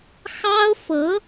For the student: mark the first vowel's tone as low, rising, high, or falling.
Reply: high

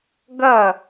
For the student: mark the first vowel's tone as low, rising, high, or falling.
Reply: falling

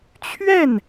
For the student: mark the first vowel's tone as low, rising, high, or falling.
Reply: falling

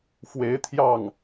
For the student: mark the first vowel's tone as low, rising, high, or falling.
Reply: rising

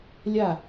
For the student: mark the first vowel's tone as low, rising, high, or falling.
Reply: falling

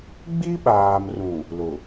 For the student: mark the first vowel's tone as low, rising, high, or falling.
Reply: high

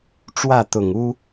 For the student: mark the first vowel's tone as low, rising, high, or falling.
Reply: falling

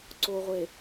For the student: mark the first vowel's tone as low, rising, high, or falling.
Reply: low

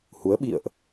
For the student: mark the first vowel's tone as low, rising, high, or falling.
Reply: rising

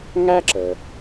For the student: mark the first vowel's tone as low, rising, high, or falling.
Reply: high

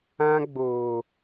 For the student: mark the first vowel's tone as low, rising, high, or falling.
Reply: high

